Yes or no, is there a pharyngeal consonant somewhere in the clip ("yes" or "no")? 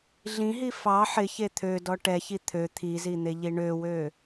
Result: yes